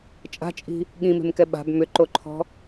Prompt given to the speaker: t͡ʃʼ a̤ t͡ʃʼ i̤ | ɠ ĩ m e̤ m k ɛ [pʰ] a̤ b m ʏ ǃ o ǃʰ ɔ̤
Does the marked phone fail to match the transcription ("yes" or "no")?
yes